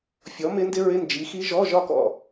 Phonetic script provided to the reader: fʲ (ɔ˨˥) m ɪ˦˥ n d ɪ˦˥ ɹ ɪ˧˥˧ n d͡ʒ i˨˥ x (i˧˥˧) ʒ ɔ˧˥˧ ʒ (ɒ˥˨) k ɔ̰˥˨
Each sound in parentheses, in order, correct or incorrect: correct, incorrect: i˦˥, correct

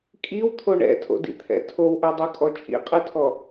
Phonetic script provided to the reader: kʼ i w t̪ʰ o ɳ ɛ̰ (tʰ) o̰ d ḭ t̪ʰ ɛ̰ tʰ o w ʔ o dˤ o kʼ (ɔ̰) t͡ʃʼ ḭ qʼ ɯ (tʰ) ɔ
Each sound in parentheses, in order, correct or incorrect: correct, incorrect: ɔ, correct

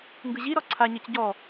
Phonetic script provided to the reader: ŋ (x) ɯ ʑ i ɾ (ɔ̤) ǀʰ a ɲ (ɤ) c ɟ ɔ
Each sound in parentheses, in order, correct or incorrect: incorrect: ɡ, incorrect: ɔ, correct

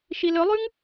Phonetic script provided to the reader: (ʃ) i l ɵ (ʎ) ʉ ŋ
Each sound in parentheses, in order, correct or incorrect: correct, incorrect: lˠ

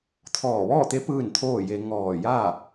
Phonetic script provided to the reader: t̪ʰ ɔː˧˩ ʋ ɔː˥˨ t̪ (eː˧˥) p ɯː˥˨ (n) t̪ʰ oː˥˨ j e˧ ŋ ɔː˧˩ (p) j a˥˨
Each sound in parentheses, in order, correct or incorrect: incorrect: e˧˥, correct, incorrect: none

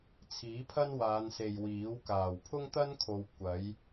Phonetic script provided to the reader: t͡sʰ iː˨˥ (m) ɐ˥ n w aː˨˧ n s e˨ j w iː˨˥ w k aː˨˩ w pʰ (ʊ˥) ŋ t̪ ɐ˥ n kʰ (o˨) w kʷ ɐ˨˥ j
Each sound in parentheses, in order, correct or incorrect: incorrect: pʰ, correct, correct

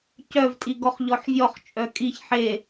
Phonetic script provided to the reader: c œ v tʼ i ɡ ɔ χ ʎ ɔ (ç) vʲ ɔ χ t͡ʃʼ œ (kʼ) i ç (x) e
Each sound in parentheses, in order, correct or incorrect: incorrect: ħ, correct, incorrect: ħ

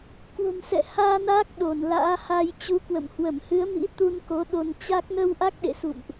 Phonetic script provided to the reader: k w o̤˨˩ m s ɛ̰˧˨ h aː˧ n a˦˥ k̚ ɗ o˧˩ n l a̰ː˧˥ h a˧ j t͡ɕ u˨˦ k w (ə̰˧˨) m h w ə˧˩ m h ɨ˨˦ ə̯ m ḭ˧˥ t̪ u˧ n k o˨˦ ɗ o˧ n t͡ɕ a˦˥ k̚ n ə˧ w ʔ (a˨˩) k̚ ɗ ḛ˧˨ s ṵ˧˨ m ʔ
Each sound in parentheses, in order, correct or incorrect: correct, incorrect: a˦˥

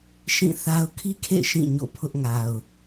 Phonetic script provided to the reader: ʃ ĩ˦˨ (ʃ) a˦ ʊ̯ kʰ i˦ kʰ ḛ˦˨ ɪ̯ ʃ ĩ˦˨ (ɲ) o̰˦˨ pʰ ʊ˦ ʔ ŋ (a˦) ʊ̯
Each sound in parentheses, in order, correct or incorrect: incorrect: θ, correct, incorrect: a˨

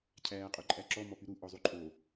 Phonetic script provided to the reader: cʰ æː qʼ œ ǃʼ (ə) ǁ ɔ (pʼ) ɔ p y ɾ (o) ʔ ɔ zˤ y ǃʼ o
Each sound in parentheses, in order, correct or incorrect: incorrect: æ, incorrect: m, incorrect: u

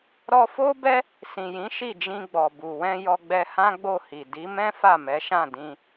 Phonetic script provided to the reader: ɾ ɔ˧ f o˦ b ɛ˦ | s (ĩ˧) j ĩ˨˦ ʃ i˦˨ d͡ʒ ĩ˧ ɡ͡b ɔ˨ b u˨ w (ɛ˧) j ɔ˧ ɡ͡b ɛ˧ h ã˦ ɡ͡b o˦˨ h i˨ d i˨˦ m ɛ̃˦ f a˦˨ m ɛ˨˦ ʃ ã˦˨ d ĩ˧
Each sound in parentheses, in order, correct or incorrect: incorrect: ĩ˨, incorrect: ɛ̃˧

